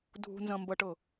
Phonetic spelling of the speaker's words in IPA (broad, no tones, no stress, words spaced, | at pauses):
dʱṳnzɐ̃mbɐʈɤ